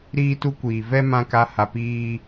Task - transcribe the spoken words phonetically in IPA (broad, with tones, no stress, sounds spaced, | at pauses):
ɾ iː˦ t u˦ kʷ iː˨ v ɛ˦ m ã˦ k a˦ h a˧ p iː˦